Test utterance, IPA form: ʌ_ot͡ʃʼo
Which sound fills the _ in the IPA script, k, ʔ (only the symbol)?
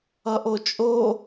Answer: ʔ